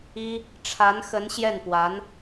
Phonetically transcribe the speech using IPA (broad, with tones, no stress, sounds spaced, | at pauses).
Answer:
i˥ | ʈ͡ʂʰ a˧˥ n x ə˧˥ n ɕ j ɛ˥˩ n p w a˧˥ n